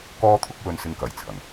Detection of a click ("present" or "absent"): absent